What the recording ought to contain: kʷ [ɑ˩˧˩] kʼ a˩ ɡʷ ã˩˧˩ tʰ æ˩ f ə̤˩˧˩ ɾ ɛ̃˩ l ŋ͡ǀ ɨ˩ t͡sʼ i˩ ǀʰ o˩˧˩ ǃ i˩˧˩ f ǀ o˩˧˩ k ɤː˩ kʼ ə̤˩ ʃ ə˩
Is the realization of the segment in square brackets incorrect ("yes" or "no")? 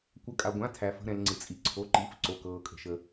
yes